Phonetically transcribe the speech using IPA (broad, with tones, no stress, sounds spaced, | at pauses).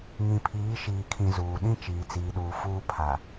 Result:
ŋ ĩ˨ pʰ iː˨˦ ʃ iː˨ kʰ ĩ˨ z uː˨ ɗ ĩ˦ t͡ʃ iː˨ t͡s iː˨ ɗ uː˨ f uː˦ pʰ a˨